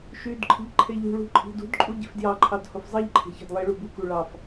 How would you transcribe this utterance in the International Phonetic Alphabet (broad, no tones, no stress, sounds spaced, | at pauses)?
ʃ y d ǃʰ i̤ ʎ ǃʰ e ʎ ṳ ɭ ṳ ǃʼ i̤ d ṳ d ǃʼ u ɟ e̤ f d j ɑ ǃʰ ɑ d h o f zˤ i ʎ ǃʰ e̤ ç ɑ̤ d lˠ i ɭ u b u k u ɭ ɑ f